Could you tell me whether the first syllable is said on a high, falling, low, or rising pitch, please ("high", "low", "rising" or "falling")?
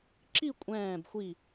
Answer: falling